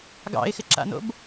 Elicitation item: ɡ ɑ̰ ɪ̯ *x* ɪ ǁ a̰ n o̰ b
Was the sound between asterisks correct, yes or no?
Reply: yes